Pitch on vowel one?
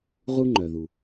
high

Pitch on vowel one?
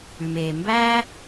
low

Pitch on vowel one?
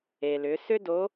low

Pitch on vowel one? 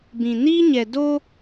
low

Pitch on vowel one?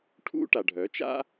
high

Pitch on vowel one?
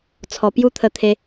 low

